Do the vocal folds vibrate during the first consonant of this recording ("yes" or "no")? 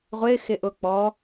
yes